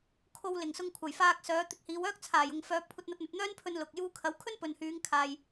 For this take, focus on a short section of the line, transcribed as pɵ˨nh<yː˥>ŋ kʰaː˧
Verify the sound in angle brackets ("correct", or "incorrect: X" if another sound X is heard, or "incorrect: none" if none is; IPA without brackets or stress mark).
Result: incorrect: yː˨˧